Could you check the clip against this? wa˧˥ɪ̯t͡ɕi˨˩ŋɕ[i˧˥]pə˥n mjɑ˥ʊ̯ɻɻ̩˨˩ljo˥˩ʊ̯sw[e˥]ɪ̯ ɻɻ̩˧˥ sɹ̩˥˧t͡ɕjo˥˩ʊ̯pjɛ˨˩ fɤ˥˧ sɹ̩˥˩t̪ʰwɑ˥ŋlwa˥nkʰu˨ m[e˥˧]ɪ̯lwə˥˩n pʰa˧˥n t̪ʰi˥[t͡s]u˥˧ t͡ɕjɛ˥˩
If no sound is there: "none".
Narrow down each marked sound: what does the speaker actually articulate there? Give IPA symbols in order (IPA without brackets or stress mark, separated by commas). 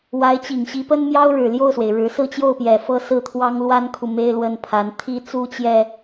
i˧˥, e˩, e˥˧, t͡s